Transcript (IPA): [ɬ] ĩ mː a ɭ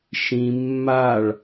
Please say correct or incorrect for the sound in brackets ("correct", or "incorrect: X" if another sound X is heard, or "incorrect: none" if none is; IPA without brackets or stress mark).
incorrect: ʃ